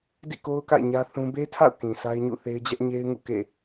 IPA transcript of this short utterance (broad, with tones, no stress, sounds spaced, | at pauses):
d ḭ˦˨ k o˦ ʊ̯ k a̰˦˨ ɪ̯ ɲ ä˦ θ ũ˦ b e˦ tʰ a̰˦˨ ʊ̯ k ĩ˨ s a˦ ɪ̯ ɲ ṵ˦˨ θ e˦ ɪ̯ d͡ʑ ɛ˦ ʔ ɲ e˦ ɪ̯ ŋ ṵ˦˨ k ḛ˦˨